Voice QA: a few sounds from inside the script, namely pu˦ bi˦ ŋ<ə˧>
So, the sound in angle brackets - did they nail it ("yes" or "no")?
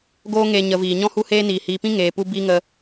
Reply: yes